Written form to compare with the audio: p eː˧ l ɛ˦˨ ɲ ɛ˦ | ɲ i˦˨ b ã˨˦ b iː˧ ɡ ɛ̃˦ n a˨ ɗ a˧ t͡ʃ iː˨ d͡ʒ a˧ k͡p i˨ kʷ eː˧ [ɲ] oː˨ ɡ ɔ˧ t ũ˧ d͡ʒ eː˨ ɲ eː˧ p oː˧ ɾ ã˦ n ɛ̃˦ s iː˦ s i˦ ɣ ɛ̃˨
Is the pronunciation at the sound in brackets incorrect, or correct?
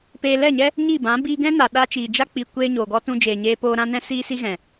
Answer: correct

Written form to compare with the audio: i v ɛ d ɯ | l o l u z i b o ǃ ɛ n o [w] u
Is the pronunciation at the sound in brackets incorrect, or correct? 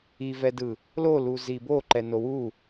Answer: correct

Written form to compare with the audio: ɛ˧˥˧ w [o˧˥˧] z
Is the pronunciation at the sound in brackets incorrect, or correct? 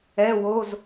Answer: correct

